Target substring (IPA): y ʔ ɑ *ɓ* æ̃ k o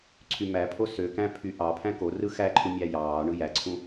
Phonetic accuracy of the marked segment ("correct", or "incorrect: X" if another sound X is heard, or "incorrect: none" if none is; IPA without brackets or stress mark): incorrect: pʰ